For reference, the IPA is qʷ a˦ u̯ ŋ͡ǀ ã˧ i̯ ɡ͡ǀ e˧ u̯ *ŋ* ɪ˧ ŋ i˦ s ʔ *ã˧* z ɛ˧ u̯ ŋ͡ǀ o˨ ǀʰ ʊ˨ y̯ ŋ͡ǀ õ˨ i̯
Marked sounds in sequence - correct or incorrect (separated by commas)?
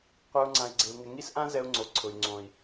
correct, incorrect